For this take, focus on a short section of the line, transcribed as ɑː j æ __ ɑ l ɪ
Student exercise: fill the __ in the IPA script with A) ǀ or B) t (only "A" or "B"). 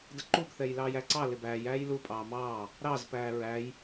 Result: A